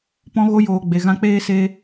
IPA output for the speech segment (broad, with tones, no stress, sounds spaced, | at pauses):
p ɔ̃˦ ɣ o˦ j oː˧ ɡ͡b e˧ ɣ ã˦ k͡p eː˧ s e˧